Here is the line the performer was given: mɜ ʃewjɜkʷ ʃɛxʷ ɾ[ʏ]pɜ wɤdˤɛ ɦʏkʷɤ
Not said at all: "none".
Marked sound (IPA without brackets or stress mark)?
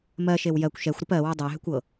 ʏ